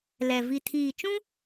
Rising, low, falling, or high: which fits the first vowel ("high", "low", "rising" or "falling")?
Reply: low